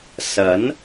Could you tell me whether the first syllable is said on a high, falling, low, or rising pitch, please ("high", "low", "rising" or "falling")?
rising